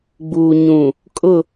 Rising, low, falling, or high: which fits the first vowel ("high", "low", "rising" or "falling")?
low